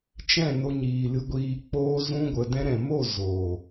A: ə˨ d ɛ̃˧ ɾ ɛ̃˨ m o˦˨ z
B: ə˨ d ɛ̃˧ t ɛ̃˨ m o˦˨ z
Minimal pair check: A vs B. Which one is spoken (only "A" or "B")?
A